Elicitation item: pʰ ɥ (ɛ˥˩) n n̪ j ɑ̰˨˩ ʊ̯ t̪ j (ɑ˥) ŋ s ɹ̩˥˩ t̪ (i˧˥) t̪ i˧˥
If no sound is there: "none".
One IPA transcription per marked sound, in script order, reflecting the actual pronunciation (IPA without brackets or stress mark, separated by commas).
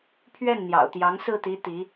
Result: ɛ˥˩, ɑ˧˥, i˧˥